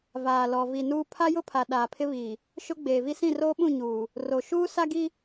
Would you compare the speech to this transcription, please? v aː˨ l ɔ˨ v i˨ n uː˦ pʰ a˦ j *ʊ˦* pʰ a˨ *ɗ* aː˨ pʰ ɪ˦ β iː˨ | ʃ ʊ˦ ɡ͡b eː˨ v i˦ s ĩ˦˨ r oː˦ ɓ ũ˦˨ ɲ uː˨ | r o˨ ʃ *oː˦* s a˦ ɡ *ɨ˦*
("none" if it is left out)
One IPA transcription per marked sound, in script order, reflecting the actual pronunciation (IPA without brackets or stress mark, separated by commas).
ʊ˦, ɗ, uː˦, i˦